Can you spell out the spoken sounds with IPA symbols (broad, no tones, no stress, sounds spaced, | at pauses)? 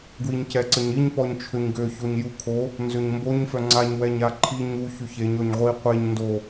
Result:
ɡ w i ɲ c ɛ ǀ ə ɲ i ɲ p ɔ ɲ t͡ʃʰ ø ɲ ɡ ø ç o ɲ j u kʰ o | n z ø ɲ m b o ɲ f œ ŋ͡ǀ a ɲ w ɛ ɲ a ǃʰ i ɲ u ç y ç e ɲ ɔ ɲ ʁʷ i qʷ e ɲ n d o